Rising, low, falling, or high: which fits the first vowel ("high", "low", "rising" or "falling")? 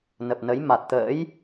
low